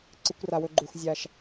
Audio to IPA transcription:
ǀ ɨ˨ kʷ r a˩ w ɵ˨ ɡ͡ǃ u˩ x zʲ a˩ ʃ

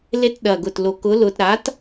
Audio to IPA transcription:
l e˧ t ɗ ɐ˨˩ ɡ ʊ˨˩ t l o˨˩ k ʊ˨˥ l ʊ˧ t ɾ a˨˥ t

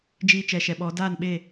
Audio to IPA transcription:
d͡ʒ iː˧ t͡ʃ ɛ˨ ʃ ɛ˨ ɓ ɔ˨˦ d aː˦˨ n ɓ e˦˨

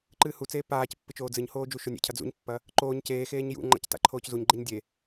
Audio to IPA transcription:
ǃ ɨː h u t͡s eː p aː c pː ɨ t͡ʃ oː d͡z ɨ ɲ h oː d͡ʒ u ʃ o nʲ ḛ cʰ ɐ d͡z ṵ ɲ pː ɐ | ǃ oː ɲ c eː x eː ɲ j ṵ ŋ͡ǃ a̰ c t a̰ ǃʰ oː c z u ɲ ɡ͡ǃ e ɲ dʲ e

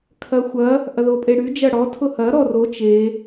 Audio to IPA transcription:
kʰ ɐ xʷ ɐ | ʔ ɐ ð o pʼ e ɽ y d͡ʒ ɐ ɽ ɔ tʰ ʊ h ɐ ɾ ɔ r o t͡ʃ e

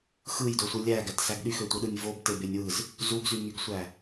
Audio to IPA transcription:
x ɯ j d o sʷ ɯ lʲ æ ɡ æ t s æ ɡ ɗ y x ø tʷ ɯ ɗ ɯ nʲ v o b t e b e nʲ w ɯ z | z u ɡ z y ŋ y ɡ sʷ æ

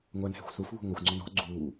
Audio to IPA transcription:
ŋʷ æ n h ɛ̤ xʷ s u f β ṳ ŋʷ ʌ xʷ ŋ͡ǀ ɔ n ɔ̤ ɡ͡ǀ uː

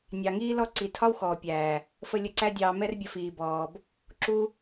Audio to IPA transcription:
nʲ ɑ˨ ŋ iː˦ l ɔ˦ ǀ i˨ tʰ ɒ˦ w x ɔː˨ pʲ æː˨ | f ə˧ lʲ ə˧ ǀ æ˦ dʲ ɑː˧ m ɛ˦ r bʲ ə˧ f iː˨ b ɔː˨ b | ǁ u˧

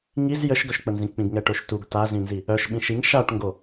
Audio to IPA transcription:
ŋ i z j ə ʃ ɡ œ ʃ k͡p ə n z ĩ k͡p ĩ ɡ ŋ ɛ ʈ o ʃ t u ɡ t a z ĩ n z i | œ ʃ ɓ ĩ ʃ i ŋ ʃ a ʈ ŋ ɡ o

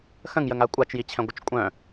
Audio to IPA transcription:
x ə̃ ŋ j ə ŋ a kʷʼ a t͡ʃ j i t͡ɕʰ ɛ̃ ɡʷ ə t͡ʃ kʷʼ œ̃

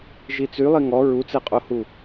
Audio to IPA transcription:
ʒ i t͡s y lˠ i ŋ ɔ ɹ u t͡s e qʼ o h u

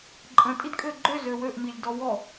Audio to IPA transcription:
ǃʼ ə̃ tʼ i d kʼ ø ɡ͡ǃ ø z ø w ø ʔ m i lʲ d ɔ w ɔ

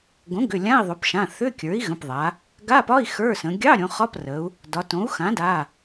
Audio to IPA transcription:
ɡ õ˩˥ ɡ ʏ˩˧˩ lʲ ã˧˥˧ i̯ ðˤ o˩˧ p ʃ ã˩˧˩ θ ʏ˧˥˧ kʲ ə˞˩˥ i̯ ɣ ə̃˩˧˩ p ðˤ a˩˧ | ɡ a˧˥˧ p ɒ˧˥˧ i̯ x ə˞˧˥˧ s ə̃˩˧ ɡʲ ɑ˧˥˧ ɾʲ õ˩˧ χ ɒ˧˥˧ p r ə˩˧ u̯ | d ɒ˩˧ t õ˩˥ u̯ x ã˩˥ d a˩˧˩

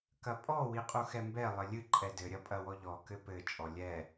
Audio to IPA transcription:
k ɐ pʼ ɔ w i qʼ u x ɛ m b ɛ lˠ ɘ lʲ ɨ ǃʼ ɛ d ɘ ɾʲ ɐ pʼ ɐ w ɔ ʎ ɔ k ɘ p ɘ t͡ʃʼ ɔ lʲ ɛ

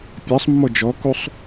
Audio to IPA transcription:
pʲ a sˤ mː ɔ d͡ʒ ɔ k u sˤ

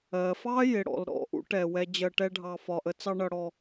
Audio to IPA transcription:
ɜ˩ f ɑ˥ j ɪ˩ ɽ ɔ̰˩ l ɾ ɔ̰˧ ʔ ṵ˧ ʈ ɛ˩ w ɛ˧ d͡ʑ ɜ˧ ʈ ɛ˥ ɖʱ ɑ˧ f ɒ˩ ʔ ə˧ t͡s ɑ˥ ɳ ʌ˧ ɽ ɔ˧

